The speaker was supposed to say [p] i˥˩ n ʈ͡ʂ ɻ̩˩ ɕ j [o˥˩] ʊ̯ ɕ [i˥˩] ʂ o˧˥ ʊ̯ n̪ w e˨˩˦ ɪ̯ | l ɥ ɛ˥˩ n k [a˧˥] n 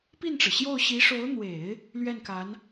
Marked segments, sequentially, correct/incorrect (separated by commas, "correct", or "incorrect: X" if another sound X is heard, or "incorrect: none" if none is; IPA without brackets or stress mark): correct, correct, incorrect: i˧˥, correct